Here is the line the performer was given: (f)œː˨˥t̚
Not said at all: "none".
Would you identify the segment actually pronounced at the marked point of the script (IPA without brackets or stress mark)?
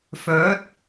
f